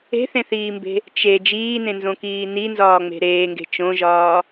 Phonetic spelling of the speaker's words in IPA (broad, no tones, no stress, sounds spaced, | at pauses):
e̤ θ ẽ θ iː m b e̤ | t͡ʃ e d͡ʒ iː n ẽ n z õ k iː n i n z ɒː ŋ͡m e̤ ɾ eː ŋ ɡ e̤ t͡ʃ õ ʒ ɒː